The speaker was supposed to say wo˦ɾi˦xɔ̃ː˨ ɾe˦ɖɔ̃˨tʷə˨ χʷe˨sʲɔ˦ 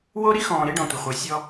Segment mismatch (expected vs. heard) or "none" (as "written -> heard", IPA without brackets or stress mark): none